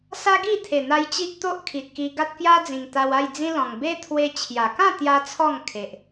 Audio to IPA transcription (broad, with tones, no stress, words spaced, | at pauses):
sa˦ɡi˥˧t̪ʰe˨˩n̪a˧j t͡ɕi˦ʔt̪o˦ʔkʰi˨t̚ki˧ ɡa˦t̚kja˦d͡zĩ˨˩ŋ t̪a˧wa˥˧j d͡zĩ˦lɔ̃˨˩ŋ be˦t̪ʰwe˧ t͡ɕʰja˨˩ kã˥˧ t̪ja˦t͡sʰɔ˥˧ŋ kʰe˨ʔ